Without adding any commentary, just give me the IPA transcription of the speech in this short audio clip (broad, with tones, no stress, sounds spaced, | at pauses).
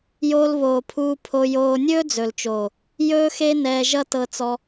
j oː˧ l β oː˨ pʰ uː˧ pʰ o˧ j oː˧ nʲ ɵː˦ d͡z ɵ˨ l t͡ʃ oː˨ | j ɵː˦ x e˦ n ɛː˧ ʒ ʌ˦ t ɤ˧ t͡s ɔ˧